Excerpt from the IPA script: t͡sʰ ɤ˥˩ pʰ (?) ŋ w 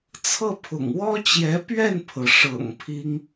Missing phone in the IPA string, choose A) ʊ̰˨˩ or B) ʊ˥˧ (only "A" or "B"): A